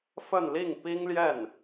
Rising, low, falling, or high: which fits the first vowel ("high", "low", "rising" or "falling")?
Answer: falling